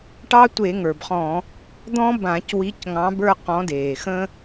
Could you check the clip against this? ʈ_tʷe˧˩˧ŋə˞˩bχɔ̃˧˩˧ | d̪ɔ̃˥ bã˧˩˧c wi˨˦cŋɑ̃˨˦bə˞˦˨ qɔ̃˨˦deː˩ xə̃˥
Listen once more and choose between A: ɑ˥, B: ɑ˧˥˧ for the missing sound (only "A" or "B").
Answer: A